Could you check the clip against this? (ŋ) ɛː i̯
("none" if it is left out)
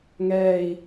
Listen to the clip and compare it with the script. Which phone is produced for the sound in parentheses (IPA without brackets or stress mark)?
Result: ŋ